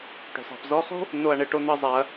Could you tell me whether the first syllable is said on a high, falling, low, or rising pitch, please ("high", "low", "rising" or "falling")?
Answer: low